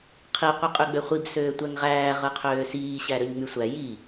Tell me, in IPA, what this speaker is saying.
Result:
qʰ i qʷ i qʼ y ɡ͡b ø χʷ i b s øː tʷ æ ŋ ʁ æː ʁ ɯ qʰ øː s iː ɕ æ ɾ ø ɲ ŋ͡m y sʷ æ j i

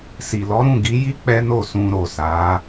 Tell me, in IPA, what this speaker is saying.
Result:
s i˨ l ɔ˨˦ ɾ ũ˦˨ ɡ i˨˦ j i˦ k͡p ɛ˦ n o˦˨ s ũ˧ ɾ o˨ s a˨˦

